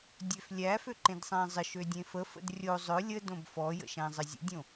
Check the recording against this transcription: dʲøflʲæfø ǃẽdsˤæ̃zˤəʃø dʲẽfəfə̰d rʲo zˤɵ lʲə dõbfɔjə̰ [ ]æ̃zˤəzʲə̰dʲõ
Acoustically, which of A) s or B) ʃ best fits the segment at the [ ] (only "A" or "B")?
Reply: B